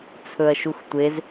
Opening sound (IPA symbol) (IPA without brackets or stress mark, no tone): t͡sʰ